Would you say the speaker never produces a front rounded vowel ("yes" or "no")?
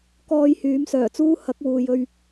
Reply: no